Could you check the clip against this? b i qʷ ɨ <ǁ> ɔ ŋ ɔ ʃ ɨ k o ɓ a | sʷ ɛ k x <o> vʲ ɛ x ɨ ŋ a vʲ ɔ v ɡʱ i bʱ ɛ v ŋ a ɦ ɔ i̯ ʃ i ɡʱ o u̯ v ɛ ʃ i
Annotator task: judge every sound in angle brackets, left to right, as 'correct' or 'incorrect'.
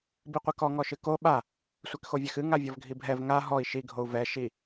incorrect: k, correct

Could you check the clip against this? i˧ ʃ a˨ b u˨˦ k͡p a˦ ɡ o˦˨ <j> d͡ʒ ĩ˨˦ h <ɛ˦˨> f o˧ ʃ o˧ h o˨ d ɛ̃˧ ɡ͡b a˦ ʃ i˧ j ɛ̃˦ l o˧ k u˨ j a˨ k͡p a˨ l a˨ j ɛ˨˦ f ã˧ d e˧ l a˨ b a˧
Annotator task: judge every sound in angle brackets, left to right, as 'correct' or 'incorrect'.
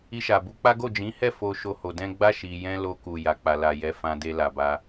incorrect: none, correct

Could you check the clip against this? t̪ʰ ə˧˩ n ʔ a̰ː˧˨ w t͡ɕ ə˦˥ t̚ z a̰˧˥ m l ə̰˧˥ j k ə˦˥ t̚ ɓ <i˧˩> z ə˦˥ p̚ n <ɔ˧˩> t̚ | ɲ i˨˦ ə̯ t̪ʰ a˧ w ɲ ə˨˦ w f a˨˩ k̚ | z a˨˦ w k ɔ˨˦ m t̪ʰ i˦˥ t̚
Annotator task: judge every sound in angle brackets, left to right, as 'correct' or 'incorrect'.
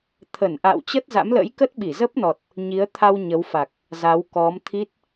correct, incorrect: ɔ˨˩

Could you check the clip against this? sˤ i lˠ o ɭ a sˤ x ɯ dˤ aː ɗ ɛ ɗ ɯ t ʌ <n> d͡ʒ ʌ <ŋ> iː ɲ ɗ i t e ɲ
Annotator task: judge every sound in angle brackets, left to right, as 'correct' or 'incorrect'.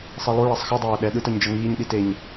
incorrect: ɲ, correct

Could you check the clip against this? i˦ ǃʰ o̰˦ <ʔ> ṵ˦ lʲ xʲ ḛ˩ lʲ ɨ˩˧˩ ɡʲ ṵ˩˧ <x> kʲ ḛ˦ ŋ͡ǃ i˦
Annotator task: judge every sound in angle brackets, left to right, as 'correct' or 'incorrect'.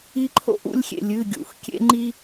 correct, correct

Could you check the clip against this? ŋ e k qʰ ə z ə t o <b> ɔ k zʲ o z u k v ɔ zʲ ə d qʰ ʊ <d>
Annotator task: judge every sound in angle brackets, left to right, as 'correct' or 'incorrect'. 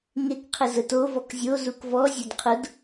incorrect: v, correct

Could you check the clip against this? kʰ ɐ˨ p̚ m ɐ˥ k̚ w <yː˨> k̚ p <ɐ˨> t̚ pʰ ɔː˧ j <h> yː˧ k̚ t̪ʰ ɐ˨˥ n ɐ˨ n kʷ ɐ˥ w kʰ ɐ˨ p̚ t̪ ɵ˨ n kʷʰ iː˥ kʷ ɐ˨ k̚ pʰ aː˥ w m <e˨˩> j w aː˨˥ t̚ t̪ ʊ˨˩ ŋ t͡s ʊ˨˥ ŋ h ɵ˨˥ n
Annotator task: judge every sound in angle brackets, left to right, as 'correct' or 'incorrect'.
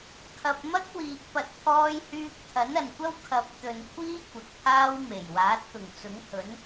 incorrect: iː˨, correct, correct, correct

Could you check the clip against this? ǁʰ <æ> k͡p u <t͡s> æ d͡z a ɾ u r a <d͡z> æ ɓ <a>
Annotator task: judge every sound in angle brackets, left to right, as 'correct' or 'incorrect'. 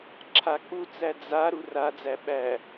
incorrect: a, correct, correct, incorrect: æ

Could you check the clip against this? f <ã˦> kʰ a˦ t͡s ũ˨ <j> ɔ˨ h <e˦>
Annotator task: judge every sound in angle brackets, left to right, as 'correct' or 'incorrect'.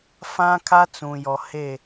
correct, correct, incorrect: e˦˨

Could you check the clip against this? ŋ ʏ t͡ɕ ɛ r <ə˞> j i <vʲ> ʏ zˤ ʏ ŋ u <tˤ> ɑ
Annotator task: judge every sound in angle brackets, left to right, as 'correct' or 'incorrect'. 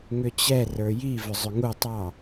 correct, incorrect: v, correct

